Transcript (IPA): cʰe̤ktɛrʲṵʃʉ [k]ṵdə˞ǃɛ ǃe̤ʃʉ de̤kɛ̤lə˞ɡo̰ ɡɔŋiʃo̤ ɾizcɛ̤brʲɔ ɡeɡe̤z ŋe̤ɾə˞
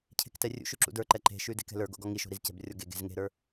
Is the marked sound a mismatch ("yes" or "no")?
yes